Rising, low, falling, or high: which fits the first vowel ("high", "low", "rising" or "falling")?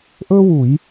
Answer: high